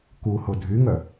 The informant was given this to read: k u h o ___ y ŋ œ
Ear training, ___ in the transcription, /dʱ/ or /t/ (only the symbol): dʱ